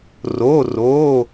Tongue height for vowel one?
mid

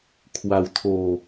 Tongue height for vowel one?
low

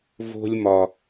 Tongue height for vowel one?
mid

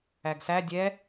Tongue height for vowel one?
low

